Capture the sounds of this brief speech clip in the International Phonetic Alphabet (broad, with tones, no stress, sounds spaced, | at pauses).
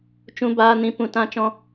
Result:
t͡ʃ ũ˦ b aː˦ n ĩ˦ p ũ˦ t ã˦ t͡ʃ ɔ̃˦